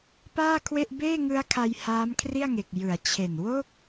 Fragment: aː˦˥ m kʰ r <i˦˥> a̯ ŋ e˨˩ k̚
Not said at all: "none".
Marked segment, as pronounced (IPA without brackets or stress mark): i˥˩